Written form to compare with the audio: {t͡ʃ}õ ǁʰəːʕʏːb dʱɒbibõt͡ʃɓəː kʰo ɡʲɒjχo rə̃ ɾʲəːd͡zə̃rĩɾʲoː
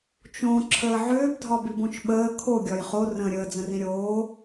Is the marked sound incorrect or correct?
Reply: correct